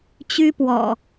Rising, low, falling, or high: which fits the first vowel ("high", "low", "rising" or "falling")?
high